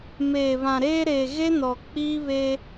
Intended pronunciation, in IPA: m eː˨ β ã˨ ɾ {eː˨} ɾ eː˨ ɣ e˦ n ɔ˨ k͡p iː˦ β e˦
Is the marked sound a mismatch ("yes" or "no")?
yes